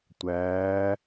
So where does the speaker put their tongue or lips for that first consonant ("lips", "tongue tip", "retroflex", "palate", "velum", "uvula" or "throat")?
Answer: tongue tip